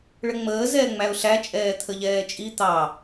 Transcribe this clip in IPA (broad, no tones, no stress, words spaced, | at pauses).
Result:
ɭəŋ͡məː zɛːŋ͡mæʊ̯ɬæ t͡ʃʼɛːt̪ʰəʎɛːt͡ʃʼi t̪ɑ